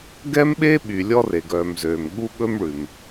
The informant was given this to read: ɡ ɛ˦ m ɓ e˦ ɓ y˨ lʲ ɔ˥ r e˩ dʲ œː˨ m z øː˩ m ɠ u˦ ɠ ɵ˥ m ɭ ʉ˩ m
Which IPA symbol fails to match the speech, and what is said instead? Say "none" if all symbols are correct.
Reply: dʲ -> ɡ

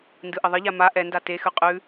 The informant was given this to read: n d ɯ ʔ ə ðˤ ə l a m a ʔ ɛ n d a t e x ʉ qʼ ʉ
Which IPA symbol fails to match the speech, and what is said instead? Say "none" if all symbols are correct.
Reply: l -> ʎ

